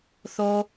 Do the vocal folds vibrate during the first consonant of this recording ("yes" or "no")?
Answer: no